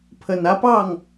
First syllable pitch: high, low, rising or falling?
low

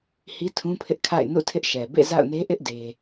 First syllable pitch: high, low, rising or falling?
high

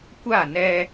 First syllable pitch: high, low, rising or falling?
falling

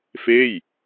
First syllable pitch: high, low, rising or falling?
falling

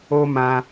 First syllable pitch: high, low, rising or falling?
high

